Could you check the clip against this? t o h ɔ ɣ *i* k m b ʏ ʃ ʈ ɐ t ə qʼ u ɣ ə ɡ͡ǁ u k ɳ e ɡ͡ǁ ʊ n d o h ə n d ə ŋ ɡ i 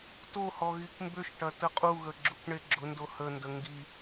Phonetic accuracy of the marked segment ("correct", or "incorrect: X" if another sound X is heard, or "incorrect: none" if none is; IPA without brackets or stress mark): correct